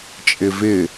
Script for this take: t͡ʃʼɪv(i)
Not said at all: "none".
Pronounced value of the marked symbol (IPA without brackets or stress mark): ɪ